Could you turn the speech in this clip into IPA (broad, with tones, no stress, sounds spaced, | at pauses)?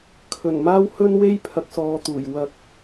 kʰ ɵ˨˩ n m aː˥ w h ɵ˥ n w e˥ j pʰ ɐ˨˥ k̚ s ɔː˨˧ t̪ uː˨˩ j w ɐ˧ k̚